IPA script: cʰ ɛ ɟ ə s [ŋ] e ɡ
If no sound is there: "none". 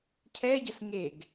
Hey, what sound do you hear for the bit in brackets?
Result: ŋ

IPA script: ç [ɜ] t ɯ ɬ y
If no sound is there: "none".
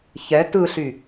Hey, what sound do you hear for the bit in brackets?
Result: ɛ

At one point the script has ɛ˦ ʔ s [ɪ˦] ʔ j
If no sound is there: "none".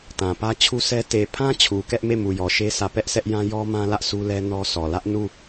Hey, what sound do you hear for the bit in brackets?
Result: ɛ˦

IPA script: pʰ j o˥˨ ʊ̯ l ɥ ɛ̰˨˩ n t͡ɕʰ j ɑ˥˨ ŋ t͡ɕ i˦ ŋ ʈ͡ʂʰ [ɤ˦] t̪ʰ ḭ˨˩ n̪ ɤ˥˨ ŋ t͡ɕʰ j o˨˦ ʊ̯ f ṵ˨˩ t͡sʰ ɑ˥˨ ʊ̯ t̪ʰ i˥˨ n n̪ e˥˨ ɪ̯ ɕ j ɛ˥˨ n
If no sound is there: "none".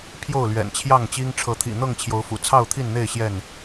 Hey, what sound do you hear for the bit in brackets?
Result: ɤ˨˦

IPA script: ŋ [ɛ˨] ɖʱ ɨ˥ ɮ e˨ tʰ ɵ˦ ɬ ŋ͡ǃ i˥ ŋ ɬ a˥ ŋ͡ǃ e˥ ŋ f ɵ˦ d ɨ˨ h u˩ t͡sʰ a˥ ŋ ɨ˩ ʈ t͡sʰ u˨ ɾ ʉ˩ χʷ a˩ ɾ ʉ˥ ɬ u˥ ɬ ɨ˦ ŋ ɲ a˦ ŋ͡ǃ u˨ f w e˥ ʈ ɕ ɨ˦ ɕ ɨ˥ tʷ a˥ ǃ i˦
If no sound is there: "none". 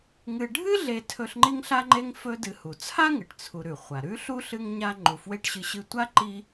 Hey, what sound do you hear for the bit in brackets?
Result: ɨ˨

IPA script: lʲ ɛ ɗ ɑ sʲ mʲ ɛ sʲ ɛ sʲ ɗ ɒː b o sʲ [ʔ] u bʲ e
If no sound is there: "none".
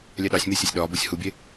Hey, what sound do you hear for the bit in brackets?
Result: h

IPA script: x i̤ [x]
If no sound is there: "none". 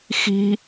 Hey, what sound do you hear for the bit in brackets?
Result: none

